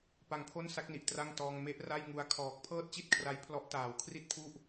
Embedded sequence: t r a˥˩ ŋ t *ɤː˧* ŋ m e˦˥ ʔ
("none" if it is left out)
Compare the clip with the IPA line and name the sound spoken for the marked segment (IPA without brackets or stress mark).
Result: ɔː˧